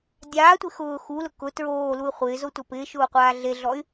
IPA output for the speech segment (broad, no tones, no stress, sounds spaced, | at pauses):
dʲ aː tʷ ɪ x ʊː x u l ʊ k ʊ t ɹ oː l u y̯ χʷ ɪː z o tʷ a p ɪː ʃ ʊː qʷ aː ɮ e ɮ ɔ y̯